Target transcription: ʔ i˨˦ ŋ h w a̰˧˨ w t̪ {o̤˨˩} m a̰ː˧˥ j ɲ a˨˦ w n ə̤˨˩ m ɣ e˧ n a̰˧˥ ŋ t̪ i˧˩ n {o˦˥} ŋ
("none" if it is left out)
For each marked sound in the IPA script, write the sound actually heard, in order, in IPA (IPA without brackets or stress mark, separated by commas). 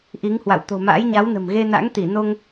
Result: o̤˨˩, o˧